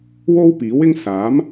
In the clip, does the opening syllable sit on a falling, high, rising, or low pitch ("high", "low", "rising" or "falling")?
high